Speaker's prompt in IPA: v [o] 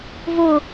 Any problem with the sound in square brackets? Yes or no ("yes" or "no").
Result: no